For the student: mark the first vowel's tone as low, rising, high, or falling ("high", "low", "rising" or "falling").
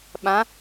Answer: rising